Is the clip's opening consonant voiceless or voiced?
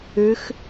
voiceless